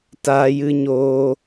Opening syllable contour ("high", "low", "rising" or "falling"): high